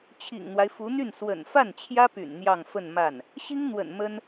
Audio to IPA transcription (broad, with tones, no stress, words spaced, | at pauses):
t͡ɕʰḭ˨˩ŋn̪wa˦ɪ̯fu˧˥n̪y˥˩n swə̰˨˩nfa˥˩n t͡ɕʰjä˥py̰˨˩n n̪jɑ˥˧ŋfə˥˧n ma˥˩n | ɕi˥ŋn̪wə̰˨˩n mə˥n